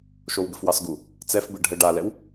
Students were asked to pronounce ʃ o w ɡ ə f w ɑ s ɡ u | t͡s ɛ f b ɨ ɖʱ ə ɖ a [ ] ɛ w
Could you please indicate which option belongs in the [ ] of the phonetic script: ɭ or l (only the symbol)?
l